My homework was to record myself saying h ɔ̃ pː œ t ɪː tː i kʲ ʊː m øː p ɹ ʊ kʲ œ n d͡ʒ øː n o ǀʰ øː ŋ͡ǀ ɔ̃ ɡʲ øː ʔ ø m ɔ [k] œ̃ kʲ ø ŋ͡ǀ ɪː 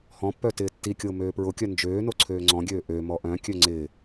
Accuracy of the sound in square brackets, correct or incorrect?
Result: incorrect